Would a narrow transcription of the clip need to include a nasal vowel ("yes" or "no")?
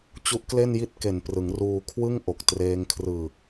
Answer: no